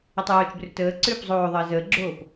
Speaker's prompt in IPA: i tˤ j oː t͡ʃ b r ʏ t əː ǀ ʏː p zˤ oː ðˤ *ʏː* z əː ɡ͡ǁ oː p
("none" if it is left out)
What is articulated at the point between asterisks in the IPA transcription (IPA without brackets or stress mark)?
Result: əː